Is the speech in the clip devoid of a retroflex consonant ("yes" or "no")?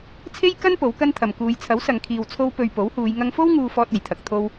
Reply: yes